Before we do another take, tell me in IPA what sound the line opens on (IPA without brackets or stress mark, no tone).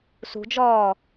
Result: s